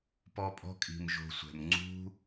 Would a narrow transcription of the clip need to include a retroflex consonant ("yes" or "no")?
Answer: no